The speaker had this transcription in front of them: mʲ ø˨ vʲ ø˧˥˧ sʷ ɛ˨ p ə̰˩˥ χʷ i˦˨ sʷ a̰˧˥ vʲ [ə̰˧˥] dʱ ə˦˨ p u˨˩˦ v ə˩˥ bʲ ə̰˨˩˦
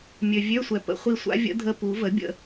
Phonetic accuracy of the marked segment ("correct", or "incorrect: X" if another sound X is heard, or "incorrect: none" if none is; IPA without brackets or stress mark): correct